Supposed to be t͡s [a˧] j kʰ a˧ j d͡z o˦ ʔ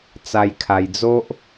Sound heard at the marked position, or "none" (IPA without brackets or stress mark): a˧